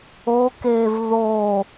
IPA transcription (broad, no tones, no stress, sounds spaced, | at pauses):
o k eː v ð o